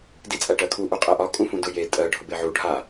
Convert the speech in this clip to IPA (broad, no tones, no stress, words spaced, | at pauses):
dit͡sʼæʈɜkʰu ʔuqʼɛʔɒ kʼũfũdʊ je tʼɜ ɖʱʊbeʕu ɖʱa